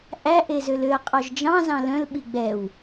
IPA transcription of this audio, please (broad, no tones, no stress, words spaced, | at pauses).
ʔæ ʔezøløɐ̯ qʼɔʒd͡ʒɑ̃zɑ̃ lœ̃lɓi ɡ͡bɛw